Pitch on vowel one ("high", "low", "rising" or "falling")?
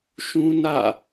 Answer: high